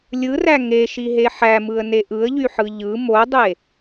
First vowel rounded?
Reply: no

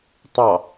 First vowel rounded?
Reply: no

